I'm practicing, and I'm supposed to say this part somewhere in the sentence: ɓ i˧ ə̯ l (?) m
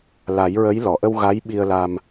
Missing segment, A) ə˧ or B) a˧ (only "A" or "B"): B